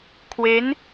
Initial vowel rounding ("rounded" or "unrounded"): unrounded